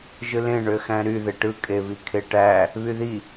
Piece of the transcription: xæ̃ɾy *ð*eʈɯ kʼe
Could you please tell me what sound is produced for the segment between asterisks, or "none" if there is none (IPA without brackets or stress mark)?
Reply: ð